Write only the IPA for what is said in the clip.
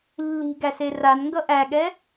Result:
lː i̤ ɡ æ s e r a n ŋ ɡ ʌ ʔ æ ɠ ɛ

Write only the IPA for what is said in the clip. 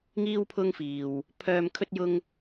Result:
ŋ iː˥ w pʰ ʊ˥ ŋ f iː˧ w | pʰ œː˧ m kʰ ɵ˥ t̚ j ʊ˥ ŋ

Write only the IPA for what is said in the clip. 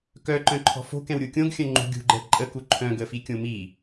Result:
k œ ǃ œ̃ ǃʰ ɔ̤ f o̤ k ɛ̃ w ɾʲ u kʲ õ ɡ xʲ œ̃ ŋ͡ǃ ṳ ɡʲ ṳ ɡ͡ǃ ɛ ǃʼ ə k u ǃʰ œ̃ ɡ ə f i kʲ õ m i

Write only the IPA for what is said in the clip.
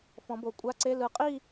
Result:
f ɔ̃˨˦ b o˨˩˦ kʷʼ a˧˥˧ ǀ e˧˥˧ l ɯ˨˦ qʼ i˥˧

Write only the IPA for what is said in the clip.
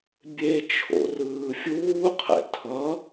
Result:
bʲ e t͡ʃʰ o̰ r ɯː fʲ uː qʰ ɛ̰ tʰ ʌ

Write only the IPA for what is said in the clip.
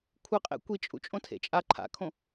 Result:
kʷʰ ɯ qʼ ḛ kʷ i t͡ʃʼ ṵ t͡ʃʼ õ tʰ ḛ t͡ʃʼ a ǃʰ a̰ kʰ õ

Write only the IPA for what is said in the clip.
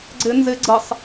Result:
ɡ͡ǀ ɪ n z ɪ ɡ͡ǀ ə sˤ

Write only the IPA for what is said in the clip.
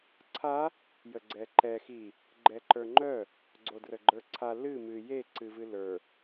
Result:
ǀʰ a | j ə ɡ͡ǀ ɛ ǃ ɛ x i | ɡ͡ǃ ɛ ǃ ə˞ ŋ͡ǃ œ | ɡ͡ǀ o d r ə ɡ͡ǃ ə˞ ǀʰ a l ɨ m ɨ j e ǀ ɨ v ɨ l ə˞

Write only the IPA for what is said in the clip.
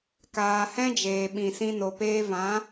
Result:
k aː˨ h ɛ̃˦ d͡ʒ eː˨ ɓ ĩ˨ s ĩ˧ n o˨ p eː˧ v ã˨˦

